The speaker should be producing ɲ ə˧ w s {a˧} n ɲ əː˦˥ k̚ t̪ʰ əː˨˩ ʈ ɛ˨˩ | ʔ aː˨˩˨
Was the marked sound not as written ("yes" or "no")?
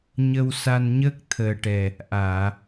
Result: no